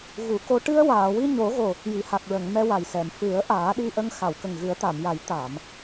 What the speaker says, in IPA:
ɣ u˨˩˦ k o˧ ʈ ɨ˧ ə̯ w aː˨˩˨ w i˧ ɲ o˨˩˦ ɣ o˨˩ | j i˨˩˨ h a˨˩ k̚ ɹ ə˨˩˨ ŋ m ɛ˧ w a˨˩ j s ɛ˨˩˨ m f ɨ˨˩˦ ə̯ ʔ aː˨˩˦ ɗ i˧ ʔ ə˧ ŋ x a˨˩˨ w k ə˨˩ ŋ ɣ ɨ˨˩˦ ə̯ t̪ a˨˩˨ m j a˨˩˦ j t̪ a˨˩˨ m

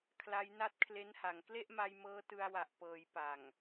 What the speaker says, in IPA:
kʰ l a˦˥ j n a˥˩ t̚ kʰ l e˦˥ n h a˩˦ ŋ k l e˥˩ ʔ m a˧ j m ɤː˦˥ t ɯ˧ a̯ w a˨˩ ʔ p ɤː˩˦ j p a˨˩ ŋ

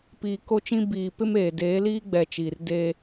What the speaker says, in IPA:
p iː˨ k o˦ t͡ʃ ĩ˦ b iː˨ p ɪ˦ m eː˨ d eː˨˦ l iː˦ ɡ͡b ɛ˨ t͡ʃ iː˨ r d eː˦

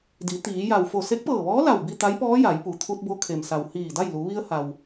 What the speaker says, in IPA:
d i˩˧ t̪ iː˩˧ j a˧˩ w f o˧˩ s e˧˥ k̚ p ɤː˧˩ ʋ ɔː˧˥ l a˧˩ w b i˥˨ t̪ a˧˥ j p ɔː˧˥ j a˩˧ j p u˩˧ t̪ʰ u˧ t̚ b o˧ kʰ e˩ m s a˩ w h iː˧˩ d a˥˨ j l u˩˧ ʋ i˧ ə̯ h a˩ w

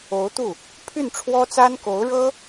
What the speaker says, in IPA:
o˧˥ ʊ̯ t̪ u˥˩ | pʰ y˥˩ n ʈ͡ʂʰ w ɔ˥ t͡s a˥ n k o˧˥ ʊ̯ ɻ ɤ˥

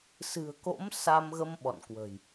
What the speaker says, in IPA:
s ɨ̤˨˩ ə̯ k o̰˧˥ m s a˧ m ɣ ə˧ m ɓ ɔ̰˧˨ n k w ə̤˨˩ j

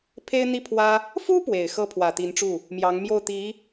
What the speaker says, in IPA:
pʰ e˥ ɪ̯ n̪ i˥˩ pʰ w ä˥ | f u˥ p w e˨˩ ɪ̯ x ɤ˥ pʰ w ä˨˩ t̪ i˧˥ n ʈ͡ʂ u˥˩ | m j ɑ˧˥ ŋ m j o˥˩ ʊ̯ t̪ i˧˥

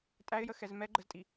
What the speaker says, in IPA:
tʼ æ ɪ̯ j ə x ɛ z m ɛ ɡ͡ǃ ə z tʼ i

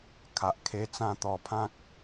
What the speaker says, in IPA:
kʰ a˨ ʔ kʰ e˦ t͡s ã˥˧ t̪ ɔ˨˩ pʰ ã˦ k̚

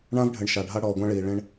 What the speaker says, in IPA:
ɳ ã˦ v ɖʱ ɘ˨ ɳ ʃ a˨ ɖʱ a˦ ɽ ɔː˨ ɡʷ ã˦ ɭ iː˨ ɭ ẽ˦ ɳ

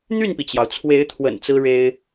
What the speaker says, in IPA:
n̪ y˥˩ n p i˩ t͡ɕ j ɑ˩ ʊ̯ t͡sʰ w e˧˥ ɪ̯ t̪ʰ w ə̰˨˩ n t͡s ɹ̩˥ ɻ e˥ ɪ̯

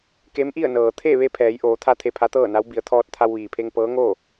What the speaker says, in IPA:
k e˧˥ m ʔ i˥˨ ə̯ n ɤː˩ t̪ʰ e˥˨ ʋ e˧ pʰ ɛː˩˧ j ʔ oː˩˧ t̪ʰ a˧ t̪ʰ e˧ pʰ a˧˥ t̪ ɤː˥˨ n a˧˥ w b i˩˧ ə̯ t̪ʰ ɔː˧ t̚ t̪ʰ a˧ w ʋ iː˩ pʰ e˧ ŋ p ɤː˧˥ ŋ oː˥˨

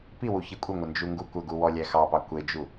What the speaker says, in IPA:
p i w u ç i kʷʼ ə ŋʷ ə n d͡ʒ u ŋ ɡ u kʷ ə ɡ u w ɔ lʲ æ x ɑ p ɑ kʷ e d͡ʒ u

